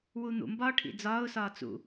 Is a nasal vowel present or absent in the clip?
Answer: absent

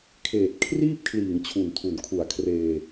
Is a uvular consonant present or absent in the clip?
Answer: absent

